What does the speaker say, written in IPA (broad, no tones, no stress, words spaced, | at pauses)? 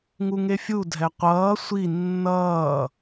ŋuŋefʲu dʱɛqʷʌː sʷi nːʌː